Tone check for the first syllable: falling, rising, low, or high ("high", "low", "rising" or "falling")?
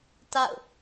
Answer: falling